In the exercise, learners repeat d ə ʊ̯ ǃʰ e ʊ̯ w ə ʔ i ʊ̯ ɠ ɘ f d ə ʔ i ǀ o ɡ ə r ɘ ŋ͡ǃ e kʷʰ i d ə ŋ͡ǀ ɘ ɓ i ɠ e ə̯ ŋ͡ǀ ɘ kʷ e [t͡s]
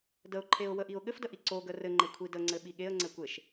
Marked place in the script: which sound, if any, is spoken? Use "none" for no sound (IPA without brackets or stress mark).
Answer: ʃ